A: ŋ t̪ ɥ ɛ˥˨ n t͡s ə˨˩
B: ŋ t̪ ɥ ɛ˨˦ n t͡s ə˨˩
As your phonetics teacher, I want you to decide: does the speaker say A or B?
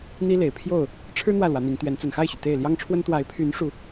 B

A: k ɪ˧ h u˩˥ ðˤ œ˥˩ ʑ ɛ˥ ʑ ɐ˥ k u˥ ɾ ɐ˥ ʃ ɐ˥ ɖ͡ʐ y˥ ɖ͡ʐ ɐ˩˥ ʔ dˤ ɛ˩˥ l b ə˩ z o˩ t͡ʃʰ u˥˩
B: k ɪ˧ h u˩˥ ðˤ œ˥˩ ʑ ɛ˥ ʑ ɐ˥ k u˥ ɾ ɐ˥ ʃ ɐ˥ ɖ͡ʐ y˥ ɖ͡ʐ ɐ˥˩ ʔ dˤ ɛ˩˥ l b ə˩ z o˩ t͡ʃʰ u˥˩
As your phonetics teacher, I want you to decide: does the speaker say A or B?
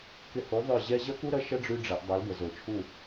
A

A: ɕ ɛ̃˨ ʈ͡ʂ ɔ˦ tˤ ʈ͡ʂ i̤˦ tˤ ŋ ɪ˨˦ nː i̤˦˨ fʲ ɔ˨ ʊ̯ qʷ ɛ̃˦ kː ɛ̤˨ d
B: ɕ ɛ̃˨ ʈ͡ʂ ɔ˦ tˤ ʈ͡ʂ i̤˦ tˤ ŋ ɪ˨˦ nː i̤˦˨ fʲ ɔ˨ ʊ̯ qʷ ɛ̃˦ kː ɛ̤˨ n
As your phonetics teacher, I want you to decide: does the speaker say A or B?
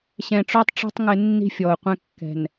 B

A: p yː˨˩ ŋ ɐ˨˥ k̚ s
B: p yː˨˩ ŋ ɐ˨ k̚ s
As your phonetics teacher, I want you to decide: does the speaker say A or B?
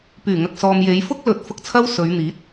B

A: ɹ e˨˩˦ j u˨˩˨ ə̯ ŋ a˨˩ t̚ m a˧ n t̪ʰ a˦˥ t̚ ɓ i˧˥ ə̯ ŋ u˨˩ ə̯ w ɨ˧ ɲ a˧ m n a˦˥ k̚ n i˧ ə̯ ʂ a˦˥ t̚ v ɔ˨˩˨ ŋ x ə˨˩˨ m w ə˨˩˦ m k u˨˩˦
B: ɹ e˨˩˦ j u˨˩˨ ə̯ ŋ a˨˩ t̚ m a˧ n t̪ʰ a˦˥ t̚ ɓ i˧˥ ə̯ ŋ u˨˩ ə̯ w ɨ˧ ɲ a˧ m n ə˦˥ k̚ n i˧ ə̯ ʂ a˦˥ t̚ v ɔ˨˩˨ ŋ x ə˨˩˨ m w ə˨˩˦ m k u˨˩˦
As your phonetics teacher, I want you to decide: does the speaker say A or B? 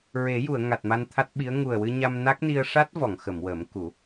A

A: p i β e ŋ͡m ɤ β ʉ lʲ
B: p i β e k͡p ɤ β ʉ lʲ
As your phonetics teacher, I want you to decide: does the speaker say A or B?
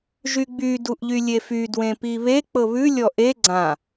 B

